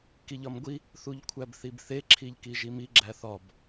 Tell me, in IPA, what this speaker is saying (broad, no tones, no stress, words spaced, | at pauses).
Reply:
kiʎɒmɡʷi | θuʎkʷʰæbθibθe ǁʰiʎkiʒimi ɡ͡ǁæθɒb